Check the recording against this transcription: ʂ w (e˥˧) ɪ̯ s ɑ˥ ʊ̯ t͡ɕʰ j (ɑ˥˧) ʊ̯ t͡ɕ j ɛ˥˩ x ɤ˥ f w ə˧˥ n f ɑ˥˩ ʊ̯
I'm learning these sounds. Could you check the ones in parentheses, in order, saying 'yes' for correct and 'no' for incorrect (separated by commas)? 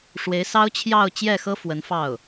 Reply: no, yes